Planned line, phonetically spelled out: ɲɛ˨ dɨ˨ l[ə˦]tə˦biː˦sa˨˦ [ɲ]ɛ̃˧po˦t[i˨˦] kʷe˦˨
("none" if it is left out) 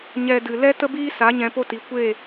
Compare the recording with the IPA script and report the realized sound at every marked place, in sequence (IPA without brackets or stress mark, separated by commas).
ɛ˦, ɲ, i˨˦